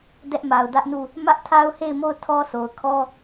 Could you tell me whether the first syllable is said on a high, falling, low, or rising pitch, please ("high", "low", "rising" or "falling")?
high